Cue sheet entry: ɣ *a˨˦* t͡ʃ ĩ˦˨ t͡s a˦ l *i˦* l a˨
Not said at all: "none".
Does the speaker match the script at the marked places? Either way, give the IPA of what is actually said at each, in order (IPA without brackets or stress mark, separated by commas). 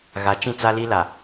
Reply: a˨˦, i˦